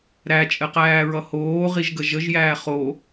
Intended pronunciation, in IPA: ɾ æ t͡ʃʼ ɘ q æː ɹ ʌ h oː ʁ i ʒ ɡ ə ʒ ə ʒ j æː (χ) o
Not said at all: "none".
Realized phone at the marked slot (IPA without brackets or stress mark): χ